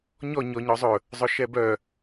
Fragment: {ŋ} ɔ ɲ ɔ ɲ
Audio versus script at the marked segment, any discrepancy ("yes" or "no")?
yes